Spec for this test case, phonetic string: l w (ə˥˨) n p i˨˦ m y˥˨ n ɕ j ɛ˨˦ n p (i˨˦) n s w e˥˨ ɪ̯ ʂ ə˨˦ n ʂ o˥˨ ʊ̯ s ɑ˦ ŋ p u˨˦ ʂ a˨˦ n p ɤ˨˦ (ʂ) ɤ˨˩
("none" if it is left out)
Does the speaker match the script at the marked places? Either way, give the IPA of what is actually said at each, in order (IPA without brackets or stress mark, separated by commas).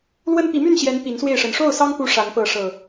ə˦, i˨˦, ʂ